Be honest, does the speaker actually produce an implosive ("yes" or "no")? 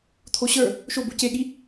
yes